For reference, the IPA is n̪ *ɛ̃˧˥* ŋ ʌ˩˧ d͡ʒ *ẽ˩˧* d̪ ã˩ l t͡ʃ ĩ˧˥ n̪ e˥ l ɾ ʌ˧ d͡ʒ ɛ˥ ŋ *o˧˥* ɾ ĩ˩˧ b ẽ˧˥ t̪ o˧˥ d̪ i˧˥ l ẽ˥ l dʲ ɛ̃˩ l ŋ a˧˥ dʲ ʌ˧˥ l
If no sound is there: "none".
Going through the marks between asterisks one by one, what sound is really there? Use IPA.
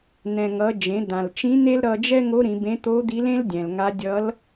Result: ɛ̃˩, ẽ˩˧, o˧˥

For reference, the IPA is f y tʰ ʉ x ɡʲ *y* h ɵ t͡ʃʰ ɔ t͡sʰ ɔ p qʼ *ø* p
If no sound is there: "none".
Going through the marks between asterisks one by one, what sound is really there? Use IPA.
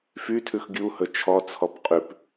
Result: u, ʉ

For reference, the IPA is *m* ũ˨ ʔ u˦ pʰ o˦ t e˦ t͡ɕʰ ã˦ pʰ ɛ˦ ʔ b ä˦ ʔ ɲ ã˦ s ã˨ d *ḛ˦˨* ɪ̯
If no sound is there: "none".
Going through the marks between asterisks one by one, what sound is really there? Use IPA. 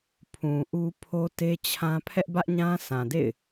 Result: pʰ, ḛ˦˨

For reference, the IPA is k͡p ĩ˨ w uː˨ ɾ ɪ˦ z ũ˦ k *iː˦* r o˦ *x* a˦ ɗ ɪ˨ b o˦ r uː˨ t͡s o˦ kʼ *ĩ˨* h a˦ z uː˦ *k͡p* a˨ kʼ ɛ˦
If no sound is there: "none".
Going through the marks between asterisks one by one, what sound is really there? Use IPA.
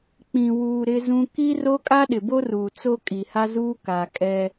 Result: i˦, kʼ, i˨, k

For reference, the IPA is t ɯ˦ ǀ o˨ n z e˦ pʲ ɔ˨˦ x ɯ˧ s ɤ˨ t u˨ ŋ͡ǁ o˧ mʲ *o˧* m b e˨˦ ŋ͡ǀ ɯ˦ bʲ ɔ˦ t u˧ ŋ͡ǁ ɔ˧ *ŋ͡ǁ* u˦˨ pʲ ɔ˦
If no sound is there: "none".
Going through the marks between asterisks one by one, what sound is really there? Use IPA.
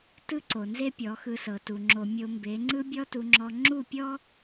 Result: o˧, ŋ͡ǁ

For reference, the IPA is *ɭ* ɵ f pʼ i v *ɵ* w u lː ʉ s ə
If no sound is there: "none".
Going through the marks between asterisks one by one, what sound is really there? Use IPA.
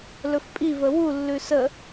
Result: l, ə

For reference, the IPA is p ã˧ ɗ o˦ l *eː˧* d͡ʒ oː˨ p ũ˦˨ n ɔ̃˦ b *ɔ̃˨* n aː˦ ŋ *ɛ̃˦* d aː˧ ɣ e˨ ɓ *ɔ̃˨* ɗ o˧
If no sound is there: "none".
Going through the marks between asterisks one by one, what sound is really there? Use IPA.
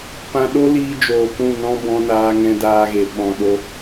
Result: iː˧, ɔ̃˦, ɛ̃˦, ɔ̃˨

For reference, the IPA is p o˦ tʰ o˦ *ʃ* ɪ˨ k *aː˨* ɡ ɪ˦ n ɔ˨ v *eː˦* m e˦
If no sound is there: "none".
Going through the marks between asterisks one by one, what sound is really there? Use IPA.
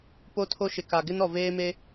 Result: ʃ, a˨, eː˦

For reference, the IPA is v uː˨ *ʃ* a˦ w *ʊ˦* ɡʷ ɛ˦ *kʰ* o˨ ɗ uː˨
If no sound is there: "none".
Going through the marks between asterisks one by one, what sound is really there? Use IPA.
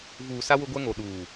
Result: s, ʊ˦, ŋ

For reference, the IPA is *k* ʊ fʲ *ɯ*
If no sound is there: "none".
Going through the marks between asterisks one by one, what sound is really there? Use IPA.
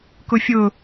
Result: k, ʊ

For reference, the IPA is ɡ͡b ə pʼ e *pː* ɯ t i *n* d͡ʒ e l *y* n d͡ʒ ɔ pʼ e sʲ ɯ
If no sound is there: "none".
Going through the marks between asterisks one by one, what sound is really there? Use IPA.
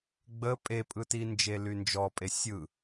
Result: pʼ, n, y

